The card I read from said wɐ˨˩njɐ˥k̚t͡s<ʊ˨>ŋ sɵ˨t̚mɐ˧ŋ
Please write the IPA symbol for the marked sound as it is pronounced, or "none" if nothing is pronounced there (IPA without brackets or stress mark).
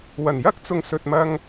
ʊ˨